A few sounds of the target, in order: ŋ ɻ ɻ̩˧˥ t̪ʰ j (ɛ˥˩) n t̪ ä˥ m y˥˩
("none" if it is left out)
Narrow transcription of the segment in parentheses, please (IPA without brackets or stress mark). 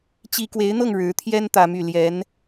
ɛ˥